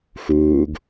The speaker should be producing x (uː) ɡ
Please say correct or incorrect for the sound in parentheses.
correct